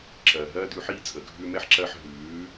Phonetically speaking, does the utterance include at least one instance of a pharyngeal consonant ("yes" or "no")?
yes